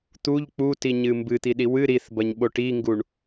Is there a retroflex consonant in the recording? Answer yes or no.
yes